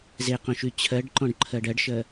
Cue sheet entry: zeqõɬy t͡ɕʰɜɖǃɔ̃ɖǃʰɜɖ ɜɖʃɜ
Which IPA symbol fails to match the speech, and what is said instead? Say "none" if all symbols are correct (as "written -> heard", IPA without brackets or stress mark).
ɬ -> ʃ